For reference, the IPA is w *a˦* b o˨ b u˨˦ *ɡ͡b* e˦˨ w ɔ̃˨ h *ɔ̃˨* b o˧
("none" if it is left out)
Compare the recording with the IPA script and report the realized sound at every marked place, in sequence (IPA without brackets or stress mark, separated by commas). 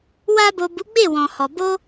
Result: a˧, ɡ͡b, ɔ˨